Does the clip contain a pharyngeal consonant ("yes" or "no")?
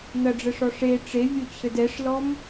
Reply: no